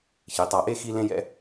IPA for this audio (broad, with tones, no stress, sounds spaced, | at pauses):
ç i˩˧ tˤ a˧˩ ʔ e˥ x i˥ l ẽ˥ j ɛ̰˥